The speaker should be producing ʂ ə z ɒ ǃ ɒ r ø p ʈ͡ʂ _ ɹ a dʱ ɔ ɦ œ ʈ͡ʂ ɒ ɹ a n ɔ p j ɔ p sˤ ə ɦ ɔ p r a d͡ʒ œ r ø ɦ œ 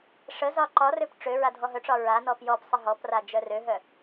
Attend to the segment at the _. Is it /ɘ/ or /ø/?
ø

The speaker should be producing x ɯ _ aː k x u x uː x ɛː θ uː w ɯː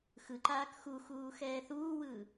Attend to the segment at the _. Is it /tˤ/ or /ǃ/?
ǃ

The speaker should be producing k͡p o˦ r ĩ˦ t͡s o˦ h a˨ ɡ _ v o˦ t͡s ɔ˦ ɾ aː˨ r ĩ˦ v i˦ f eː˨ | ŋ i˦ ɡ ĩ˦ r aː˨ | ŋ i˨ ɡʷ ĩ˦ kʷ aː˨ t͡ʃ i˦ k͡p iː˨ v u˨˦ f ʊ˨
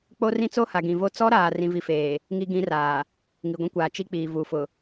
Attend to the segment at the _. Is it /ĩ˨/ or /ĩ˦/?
ĩ˨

